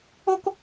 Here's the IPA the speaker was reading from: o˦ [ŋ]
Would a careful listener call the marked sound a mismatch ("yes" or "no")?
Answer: yes